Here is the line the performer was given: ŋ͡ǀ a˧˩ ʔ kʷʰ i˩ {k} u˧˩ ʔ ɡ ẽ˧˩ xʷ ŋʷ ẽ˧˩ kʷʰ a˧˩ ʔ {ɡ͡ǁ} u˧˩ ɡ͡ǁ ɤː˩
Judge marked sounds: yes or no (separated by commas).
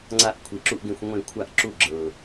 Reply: no, no